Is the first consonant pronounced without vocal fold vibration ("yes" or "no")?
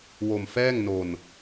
no